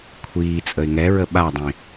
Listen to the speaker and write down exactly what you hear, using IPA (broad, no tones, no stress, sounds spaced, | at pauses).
kʷʰ iː t͡sʼ ə ɪ̯ ŋ ɛ ɹ ə ɓ a dˤ ĩ